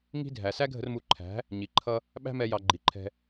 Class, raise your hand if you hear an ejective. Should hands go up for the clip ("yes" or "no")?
no